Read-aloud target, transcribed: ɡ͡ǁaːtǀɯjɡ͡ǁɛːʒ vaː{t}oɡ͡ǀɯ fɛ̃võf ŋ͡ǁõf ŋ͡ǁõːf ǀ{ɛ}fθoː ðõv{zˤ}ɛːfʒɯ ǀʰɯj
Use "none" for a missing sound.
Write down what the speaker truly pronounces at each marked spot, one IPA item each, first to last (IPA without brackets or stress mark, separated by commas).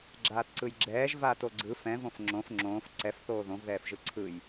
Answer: t, ɛ, ð